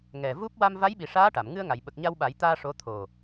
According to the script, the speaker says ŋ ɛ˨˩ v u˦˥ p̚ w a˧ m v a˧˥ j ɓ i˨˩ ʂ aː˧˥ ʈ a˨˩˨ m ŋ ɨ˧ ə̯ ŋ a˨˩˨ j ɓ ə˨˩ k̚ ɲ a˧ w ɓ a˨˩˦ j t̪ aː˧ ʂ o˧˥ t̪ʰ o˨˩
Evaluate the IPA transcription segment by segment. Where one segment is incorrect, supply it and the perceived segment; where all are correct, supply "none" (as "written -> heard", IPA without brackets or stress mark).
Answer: none